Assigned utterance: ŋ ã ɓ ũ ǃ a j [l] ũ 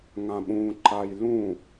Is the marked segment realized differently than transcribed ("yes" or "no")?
no